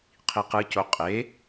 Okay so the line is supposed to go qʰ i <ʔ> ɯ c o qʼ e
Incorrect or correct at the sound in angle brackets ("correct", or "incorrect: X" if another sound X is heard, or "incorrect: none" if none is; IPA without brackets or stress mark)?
incorrect: q